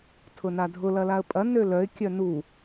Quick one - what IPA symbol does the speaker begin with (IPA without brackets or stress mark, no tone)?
tʰ